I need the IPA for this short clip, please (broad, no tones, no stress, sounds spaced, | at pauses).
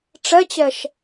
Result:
ʈ͡ʂ ɛ t͡ɕ ɛ ʃ